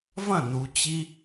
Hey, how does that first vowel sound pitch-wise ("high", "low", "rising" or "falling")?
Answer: falling